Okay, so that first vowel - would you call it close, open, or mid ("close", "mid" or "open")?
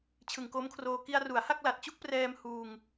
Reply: close